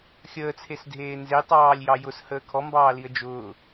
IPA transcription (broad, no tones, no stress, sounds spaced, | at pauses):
xʲ əː t͡sʰ e s dʱ eː n z e tˤ ɑː lʲ j ɑ j ʊ s h əː kʰ ɔ m b ɑː l i ə̯ d͡ʒ ʊː